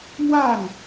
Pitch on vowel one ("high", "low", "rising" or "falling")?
falling